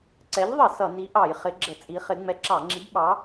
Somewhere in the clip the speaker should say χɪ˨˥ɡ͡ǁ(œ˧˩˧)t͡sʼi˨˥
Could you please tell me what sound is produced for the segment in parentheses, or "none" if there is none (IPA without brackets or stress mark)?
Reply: ə˧˩˧